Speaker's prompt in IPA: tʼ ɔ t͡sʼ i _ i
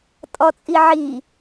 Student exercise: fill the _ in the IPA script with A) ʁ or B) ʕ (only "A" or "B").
B